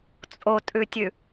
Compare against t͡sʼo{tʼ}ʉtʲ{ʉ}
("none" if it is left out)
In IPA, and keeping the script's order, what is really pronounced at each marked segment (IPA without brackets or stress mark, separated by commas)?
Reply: tʼ, ʉ